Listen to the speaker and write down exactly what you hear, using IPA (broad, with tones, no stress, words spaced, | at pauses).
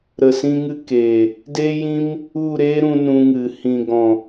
ɾə˨sĩ˧ŋɨ˧ keː˨ | de˦jĩ˦m | u˦˨ɾeː˦ɾũ˧ nũ˧ŋɨ˨ hĩ˨ɡɔ̃˨